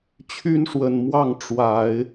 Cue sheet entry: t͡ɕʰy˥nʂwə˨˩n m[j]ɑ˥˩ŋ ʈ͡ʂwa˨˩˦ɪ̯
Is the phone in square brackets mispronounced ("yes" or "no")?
yes